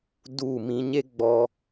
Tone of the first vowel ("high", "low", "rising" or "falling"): falling